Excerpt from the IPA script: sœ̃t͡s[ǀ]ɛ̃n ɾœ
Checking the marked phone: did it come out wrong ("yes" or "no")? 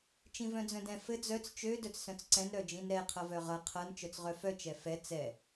no